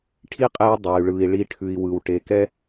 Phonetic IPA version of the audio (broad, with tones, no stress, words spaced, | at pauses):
ʈʰi˥qʼe˧w dˤɛ˩y̯ɭɯ˩i̯ ɭi˧ʈʰʉ˩i̯ wɯ˩w ʈe˩kɛ˥